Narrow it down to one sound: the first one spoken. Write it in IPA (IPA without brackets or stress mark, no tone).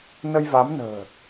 n